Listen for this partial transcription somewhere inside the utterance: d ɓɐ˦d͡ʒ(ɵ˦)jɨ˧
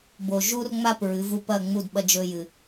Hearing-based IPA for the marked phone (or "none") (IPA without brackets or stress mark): ɵ˦